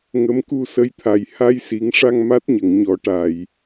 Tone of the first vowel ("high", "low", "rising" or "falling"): rising